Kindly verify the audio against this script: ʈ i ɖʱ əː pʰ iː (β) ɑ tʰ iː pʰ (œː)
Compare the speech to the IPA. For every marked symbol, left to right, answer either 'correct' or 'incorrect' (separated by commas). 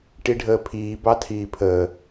incorrect, incorrect